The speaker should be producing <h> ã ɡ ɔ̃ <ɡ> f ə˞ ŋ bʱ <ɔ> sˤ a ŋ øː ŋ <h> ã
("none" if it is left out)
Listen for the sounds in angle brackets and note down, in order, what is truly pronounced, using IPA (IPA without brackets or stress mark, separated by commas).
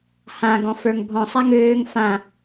h, none, ɔ̃, f